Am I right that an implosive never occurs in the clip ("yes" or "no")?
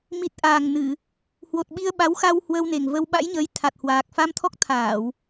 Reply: no